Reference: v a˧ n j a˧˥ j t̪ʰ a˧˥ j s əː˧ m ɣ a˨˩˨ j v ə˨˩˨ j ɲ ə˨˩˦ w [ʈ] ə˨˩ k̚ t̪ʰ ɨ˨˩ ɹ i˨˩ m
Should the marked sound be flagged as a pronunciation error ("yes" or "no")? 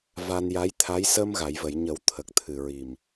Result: yes